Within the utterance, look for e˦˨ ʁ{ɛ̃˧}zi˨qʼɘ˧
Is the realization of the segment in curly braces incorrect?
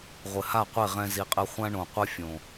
no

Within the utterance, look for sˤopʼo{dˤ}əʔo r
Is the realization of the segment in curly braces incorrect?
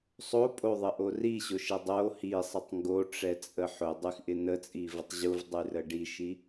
yes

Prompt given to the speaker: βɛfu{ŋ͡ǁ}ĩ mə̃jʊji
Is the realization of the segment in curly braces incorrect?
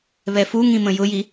yes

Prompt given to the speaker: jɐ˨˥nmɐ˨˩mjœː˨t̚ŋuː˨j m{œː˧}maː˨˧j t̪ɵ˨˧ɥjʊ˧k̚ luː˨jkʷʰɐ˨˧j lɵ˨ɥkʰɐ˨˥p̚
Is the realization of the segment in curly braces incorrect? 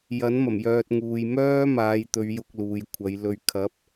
yes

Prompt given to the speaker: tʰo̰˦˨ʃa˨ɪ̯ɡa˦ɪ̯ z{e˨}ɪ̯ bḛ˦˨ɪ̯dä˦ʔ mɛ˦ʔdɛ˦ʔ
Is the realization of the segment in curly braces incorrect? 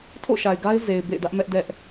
no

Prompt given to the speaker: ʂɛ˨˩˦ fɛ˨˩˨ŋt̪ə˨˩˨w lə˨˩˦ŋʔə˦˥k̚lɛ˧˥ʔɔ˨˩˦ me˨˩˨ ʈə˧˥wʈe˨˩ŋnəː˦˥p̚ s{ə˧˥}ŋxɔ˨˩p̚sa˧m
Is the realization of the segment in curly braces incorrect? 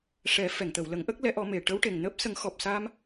yes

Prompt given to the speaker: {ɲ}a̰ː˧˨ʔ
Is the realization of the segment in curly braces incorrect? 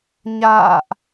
no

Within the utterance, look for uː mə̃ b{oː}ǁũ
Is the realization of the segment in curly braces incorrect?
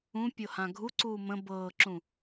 yes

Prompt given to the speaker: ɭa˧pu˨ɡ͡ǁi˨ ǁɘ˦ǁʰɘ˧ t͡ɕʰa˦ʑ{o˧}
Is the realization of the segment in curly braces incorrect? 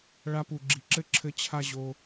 no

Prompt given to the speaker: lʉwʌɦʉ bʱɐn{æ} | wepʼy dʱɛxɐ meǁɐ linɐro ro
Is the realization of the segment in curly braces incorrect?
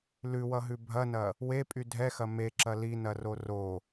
yes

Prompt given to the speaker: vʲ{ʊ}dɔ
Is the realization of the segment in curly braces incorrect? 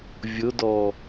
no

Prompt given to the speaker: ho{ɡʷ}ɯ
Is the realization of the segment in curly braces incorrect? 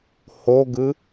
yes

